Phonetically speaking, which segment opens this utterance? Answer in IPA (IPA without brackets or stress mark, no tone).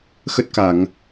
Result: x